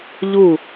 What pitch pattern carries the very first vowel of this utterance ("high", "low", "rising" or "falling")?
falling